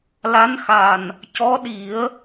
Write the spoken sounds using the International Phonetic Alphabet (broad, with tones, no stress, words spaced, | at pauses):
la˧˥nxa˨˩n | cɔ˧˥ɗi˨˩˦ə̯